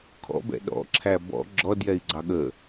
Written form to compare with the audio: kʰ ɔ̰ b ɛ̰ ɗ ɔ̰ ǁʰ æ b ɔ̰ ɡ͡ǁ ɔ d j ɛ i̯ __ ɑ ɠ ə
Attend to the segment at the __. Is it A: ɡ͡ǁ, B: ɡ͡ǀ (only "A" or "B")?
B